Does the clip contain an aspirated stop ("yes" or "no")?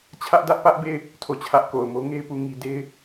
yes